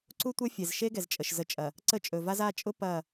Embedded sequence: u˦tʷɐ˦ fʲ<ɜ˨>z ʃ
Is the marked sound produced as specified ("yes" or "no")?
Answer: no